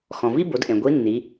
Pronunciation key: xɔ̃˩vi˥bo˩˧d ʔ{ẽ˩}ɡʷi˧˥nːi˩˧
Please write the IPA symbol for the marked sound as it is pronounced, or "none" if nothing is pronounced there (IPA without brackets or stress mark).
ẽ˩